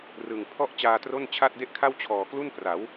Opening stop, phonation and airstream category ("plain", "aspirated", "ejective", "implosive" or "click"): aspirated